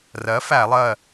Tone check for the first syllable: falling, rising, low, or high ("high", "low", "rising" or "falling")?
rising